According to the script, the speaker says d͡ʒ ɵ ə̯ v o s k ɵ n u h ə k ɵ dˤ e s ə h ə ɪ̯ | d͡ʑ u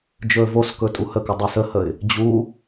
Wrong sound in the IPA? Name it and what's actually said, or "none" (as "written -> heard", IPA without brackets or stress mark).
n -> tʼ